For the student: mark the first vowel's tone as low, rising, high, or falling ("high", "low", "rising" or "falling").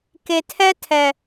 low